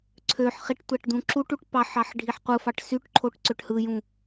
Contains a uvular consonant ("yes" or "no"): yes